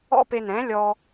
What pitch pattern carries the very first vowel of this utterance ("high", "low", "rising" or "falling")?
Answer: high